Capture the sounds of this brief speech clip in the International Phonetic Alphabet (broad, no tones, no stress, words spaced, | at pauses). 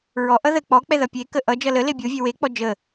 ɹɔʔʌ ðə k͡pɔ k͡pɛðʌpʲe kəʔʌ d͡ʒʌlə lebʲovʲɛ wek͡pɔ d͡ʒə